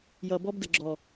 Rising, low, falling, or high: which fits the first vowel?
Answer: low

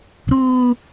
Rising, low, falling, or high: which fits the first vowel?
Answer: high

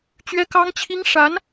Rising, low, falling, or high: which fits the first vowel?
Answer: high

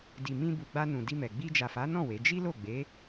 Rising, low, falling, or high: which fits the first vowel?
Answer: low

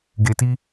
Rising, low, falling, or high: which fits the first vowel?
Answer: low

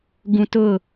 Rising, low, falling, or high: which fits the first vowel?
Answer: low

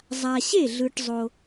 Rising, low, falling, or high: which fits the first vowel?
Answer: low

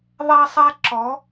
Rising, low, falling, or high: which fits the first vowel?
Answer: high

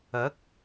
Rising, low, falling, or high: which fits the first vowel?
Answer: rising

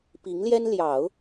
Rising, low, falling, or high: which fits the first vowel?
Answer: rising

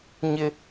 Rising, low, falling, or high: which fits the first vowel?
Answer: high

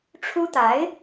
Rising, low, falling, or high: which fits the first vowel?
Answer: high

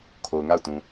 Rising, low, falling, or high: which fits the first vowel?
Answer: low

